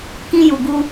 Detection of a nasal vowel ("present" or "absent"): present